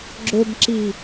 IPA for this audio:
ɡ͡ǁɵbǁi

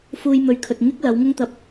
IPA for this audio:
fuː˧jmɵ˨˧ɥkʰɵ˨t̚ ŋɪ˥k̚ lɐ˨˧wŋʊ˥ŋt̪ɐ˧p̚

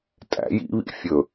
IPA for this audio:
tʼæ̰j ḭβḭ fʲɵ

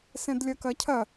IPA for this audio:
sɛ̃dlʲɐkɐcʰɐ

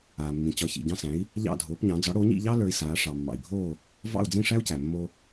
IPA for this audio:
aː˩mːĩ˩t͡ɕɒ˩˥ çḭ˩ɟɑ̃˧sæ̃˩˥i̯ | ʎɑ̰˥˩dʱoː˩˥pɲɑ̃˩˥ d͡zɒ˩˥ɽo˩˥ɲḭ˥˩ ʎɑ˥ lə˞˧i̯saː˩˥ ʂɑ˩ mːɑ̰˩i̯bʱoː˥˩ | vɑ̰˥˩u̯d͡zĩ˥˩ʂæ˥u̯ cæ˩mːoː˧

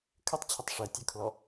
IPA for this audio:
kʰɘtˤt͡ɕʰətˤ ʂɛ tʲəkʰlɔ

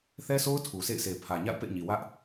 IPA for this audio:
θɛ˦sʰo˦ʊ̯ tʰu˨sḛ˦˨ɪ̯se˨ pʰä˨ɲa̰˦˨ʊ̯pḛ˦˨ɪ̯ɲi˨ wä˦ʔ

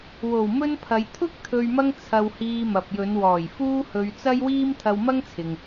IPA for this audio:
wo˨˩wmɵ˥npʰɐ˨˧j t̪ʰʊ˥k̚ t̪ʰɵ˧ɥmɐ˥ŋ t͡sʰɐ˧whiː˧ mɐ˨p̚jɵ˨˧n wɔː˨˩jfuː˥hɵ˧ɥ t͡sɐ˥jwiː˥m t̪ʰɐ˧wmɐ˥ŋt͡sʰɪ˨ŋ

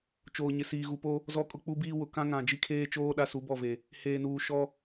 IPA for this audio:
t͡ʃoː˨ɲɪ˨ siː˨ɣu˨po˦ | zɔ˦ kʼʊ˦k͡pu˦biː˦wʊ˨ kã˦ŋã˨ d͡ʒi˦kʰeː˦t͡ʃoː˦ ɗa˦su˨˦bɔ˦˨ve˨ | heː˨nuː˨ ʃɔ˦

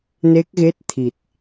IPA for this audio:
ne˦˥k̚ɣe˦˥t̚t̪ʰi˨˩t̚

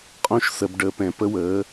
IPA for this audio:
qʼõ˦˨ʃsə˨b ɖəː˨pɛ̃˨ pə˦wəː˨˦

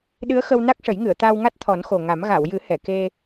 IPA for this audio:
ɗɨ˧˥ə̯xə˧w na˦˥k̚ʂə˨˩˦jŋɨ˨˩˨ə̯t̪aː˧w ŋa˦˥t̚ t̪ʰɔ˨˩˦nxo˨˩ŋa˨˩˦m ɣa˨˩˨wjɨ˨˩˦ hɛ˨˩˨ke˧

